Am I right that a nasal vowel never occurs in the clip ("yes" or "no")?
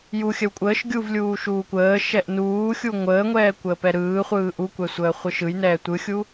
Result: yes